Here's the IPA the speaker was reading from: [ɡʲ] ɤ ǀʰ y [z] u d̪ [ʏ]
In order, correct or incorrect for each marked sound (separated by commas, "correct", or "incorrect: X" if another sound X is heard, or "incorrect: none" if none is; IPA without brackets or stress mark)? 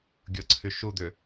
correct, incorrect: ʃ, correct